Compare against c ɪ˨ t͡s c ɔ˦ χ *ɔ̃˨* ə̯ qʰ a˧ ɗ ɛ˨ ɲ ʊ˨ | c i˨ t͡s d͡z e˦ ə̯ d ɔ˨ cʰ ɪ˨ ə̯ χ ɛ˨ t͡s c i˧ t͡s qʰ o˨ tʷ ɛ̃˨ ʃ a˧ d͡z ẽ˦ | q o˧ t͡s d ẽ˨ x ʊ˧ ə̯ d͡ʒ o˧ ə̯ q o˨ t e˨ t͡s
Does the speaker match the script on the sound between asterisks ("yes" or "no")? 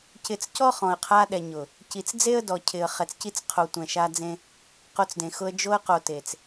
yes